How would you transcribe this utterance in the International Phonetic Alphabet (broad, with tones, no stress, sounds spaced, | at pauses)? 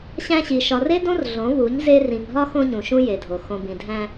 ɕ æ̃˦ ɕ i˨ ʃ ɒ˨ r e˦ d õ˦ r ɮ õ˨˦ β u˨˦ ɲ z e˦ r ĩ˨ ŋ ɦ ɒ˦ x õ˦ ɲ ũ˨ ʃ ũ˦ j e˨ dʱ o˨ x õ˨ b ĩ˨ dʱ æ̃˦